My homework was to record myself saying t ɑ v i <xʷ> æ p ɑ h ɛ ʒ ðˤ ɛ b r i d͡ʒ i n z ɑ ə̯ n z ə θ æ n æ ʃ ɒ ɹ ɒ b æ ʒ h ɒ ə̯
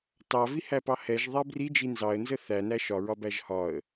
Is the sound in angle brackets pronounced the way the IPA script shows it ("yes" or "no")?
no